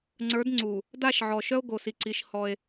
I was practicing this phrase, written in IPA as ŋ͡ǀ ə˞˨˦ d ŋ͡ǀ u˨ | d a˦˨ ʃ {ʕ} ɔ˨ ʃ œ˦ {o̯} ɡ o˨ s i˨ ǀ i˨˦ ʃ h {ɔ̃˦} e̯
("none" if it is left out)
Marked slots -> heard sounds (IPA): ʕ, o̯, ɔ˦

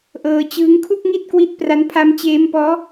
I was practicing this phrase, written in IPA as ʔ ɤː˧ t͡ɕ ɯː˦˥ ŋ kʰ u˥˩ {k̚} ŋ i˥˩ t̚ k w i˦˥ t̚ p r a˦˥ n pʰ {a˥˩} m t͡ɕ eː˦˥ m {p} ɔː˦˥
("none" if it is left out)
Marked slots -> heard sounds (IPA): k̚, a˦˥, p

